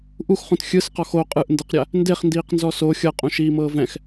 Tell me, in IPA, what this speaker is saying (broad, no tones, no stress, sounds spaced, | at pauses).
ʔ u x χ ũ t xʲ ɯ s q ɔ x o qʼ ɯ ʔ n d ɯ q ɾʲ a | n d e χ n d iː q n z ɔ s o xʲ ɤ qʼ ũ ʃ iː m ɤː v ɛ̃ x